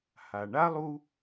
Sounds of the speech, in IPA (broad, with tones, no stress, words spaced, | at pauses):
ha˩ɳa˥lˠu˦